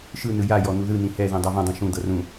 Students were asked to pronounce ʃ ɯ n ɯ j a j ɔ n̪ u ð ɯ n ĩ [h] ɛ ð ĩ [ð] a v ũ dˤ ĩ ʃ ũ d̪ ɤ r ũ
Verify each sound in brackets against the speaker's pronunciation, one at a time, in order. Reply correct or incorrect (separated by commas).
correct, incorrect